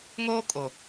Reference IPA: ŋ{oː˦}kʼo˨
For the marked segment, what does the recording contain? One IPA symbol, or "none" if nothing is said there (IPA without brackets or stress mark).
oː˦